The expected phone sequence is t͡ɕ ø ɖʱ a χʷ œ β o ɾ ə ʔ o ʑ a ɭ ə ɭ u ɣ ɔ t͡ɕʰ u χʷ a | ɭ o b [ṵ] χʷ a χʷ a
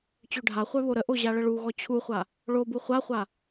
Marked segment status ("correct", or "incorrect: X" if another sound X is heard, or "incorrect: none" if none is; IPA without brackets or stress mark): incorrect: u